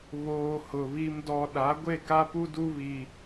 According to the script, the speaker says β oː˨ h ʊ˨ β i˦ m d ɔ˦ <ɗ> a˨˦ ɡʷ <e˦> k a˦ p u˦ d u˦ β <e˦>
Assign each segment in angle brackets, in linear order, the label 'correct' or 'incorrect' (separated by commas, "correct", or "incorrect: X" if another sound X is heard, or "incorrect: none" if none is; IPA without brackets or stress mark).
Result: correct, incorrect: e˦˨, incorrect: i˦